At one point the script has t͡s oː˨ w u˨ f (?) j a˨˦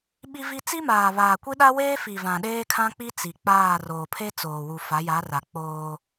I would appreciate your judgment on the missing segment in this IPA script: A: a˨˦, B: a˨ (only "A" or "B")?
A